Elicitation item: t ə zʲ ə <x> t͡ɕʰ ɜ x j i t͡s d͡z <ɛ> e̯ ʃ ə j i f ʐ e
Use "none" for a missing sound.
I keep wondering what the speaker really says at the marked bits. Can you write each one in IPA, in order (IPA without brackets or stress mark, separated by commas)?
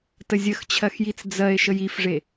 x, ɜ